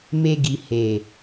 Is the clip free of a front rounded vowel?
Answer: yes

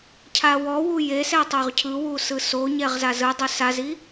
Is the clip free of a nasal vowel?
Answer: yes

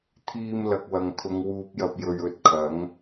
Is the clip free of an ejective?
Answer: yes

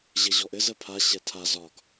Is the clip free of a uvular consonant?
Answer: yes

